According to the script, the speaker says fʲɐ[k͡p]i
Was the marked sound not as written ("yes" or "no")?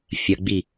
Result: yes